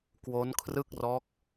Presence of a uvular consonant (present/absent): absent